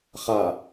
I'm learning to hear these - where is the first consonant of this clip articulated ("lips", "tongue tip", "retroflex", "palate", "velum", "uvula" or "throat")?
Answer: uvula